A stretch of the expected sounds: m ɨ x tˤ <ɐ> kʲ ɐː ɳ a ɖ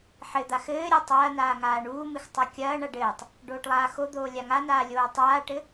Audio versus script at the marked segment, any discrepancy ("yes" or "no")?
no